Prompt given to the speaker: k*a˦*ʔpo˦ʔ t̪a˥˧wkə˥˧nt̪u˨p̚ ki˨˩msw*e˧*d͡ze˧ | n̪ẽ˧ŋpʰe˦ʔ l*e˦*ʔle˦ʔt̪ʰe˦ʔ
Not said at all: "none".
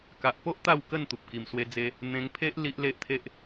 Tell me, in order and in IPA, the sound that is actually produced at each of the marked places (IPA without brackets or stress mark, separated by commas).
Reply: a˨, e˧, i˦